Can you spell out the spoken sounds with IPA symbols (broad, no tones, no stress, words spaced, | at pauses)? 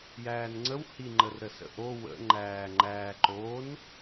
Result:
jæːnŋ͡ǀəw hi ŋ͡ǃərɾəsə̰ʔo wə̰ ŋ͡ǃæːŋ͡ǃæːǃon